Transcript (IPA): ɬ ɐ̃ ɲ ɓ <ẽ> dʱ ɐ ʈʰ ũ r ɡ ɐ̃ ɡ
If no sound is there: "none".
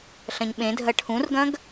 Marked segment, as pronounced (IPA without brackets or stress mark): ẽ